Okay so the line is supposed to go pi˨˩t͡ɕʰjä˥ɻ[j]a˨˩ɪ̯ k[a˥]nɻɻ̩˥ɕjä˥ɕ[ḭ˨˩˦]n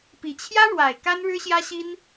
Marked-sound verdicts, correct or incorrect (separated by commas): incorrect, correct, incorrect